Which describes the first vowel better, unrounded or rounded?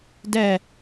unrounded